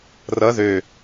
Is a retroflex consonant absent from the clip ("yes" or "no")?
yes